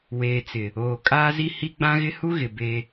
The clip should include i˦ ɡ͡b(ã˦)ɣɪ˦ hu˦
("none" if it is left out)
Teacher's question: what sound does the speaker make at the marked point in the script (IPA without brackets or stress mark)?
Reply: ã˦